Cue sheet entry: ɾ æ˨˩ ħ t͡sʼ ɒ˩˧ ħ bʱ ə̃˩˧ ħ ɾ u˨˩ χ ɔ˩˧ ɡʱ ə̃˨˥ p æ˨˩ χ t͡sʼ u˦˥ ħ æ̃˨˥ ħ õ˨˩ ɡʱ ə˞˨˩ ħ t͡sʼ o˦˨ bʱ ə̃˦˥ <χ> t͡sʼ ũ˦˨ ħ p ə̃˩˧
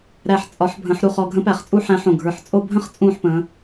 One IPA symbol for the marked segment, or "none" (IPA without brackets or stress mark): χ